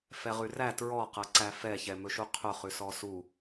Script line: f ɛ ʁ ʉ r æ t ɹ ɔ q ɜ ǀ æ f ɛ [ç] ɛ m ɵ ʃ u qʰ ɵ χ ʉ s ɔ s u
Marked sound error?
no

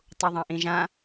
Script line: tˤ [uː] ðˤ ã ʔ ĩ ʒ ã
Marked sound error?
yes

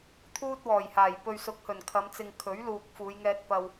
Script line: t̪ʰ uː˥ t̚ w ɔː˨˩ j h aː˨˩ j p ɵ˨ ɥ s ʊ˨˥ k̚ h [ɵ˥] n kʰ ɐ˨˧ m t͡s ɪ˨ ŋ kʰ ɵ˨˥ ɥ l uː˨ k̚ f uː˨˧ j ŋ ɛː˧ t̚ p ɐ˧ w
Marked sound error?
yes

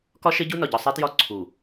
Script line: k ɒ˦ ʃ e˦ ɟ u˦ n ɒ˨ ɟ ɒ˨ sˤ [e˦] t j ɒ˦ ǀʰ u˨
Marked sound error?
no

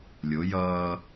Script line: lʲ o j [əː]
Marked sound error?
yes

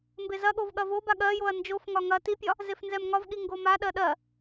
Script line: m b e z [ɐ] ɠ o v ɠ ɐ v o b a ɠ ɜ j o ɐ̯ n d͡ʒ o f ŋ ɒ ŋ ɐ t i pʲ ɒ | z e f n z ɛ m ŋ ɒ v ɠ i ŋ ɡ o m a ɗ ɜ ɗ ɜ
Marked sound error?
no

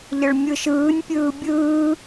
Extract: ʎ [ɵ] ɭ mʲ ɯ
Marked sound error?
yes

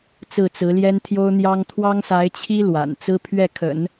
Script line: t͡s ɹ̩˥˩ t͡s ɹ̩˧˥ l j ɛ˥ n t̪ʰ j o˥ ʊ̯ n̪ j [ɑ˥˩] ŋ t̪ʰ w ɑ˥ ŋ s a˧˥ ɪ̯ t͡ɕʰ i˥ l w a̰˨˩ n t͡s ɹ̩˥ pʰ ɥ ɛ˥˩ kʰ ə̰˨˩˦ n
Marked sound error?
yes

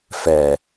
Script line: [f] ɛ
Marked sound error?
no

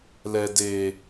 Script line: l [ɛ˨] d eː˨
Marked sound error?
no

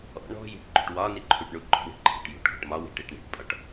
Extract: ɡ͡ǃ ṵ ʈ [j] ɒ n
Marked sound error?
yes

